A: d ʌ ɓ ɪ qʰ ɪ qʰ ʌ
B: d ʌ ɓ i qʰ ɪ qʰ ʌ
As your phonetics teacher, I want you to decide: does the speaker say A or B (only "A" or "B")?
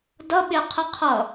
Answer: A